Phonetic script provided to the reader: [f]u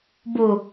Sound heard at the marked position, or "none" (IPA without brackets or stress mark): b